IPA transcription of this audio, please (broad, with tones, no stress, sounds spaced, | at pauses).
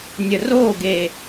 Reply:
nʲ ə˨ r oː˦˨ ɡ e˨